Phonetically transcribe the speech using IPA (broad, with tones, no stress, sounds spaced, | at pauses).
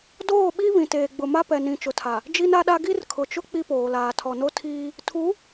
d oː˦˨ ɓ i˦ β ĩ˨ t eː˨ ɡ͡b ʊ˨ m a˦ p ɛ˨ n ĩ˨ t͡ʃ ʊ˨ tʰ a˨ | d͡ʒ i˦ n a˦ ɗ a˦ ɡ i˦ r kʰ ʊ˨ t͡ʃ ʊ˦ k͡p i˦ p oː˨ l aː˨ tʰ ɔ˨ n o˦ tʰ iː˦ | tʰ u˨˦